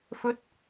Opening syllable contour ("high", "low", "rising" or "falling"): rising